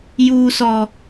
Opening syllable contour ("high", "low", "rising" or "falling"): high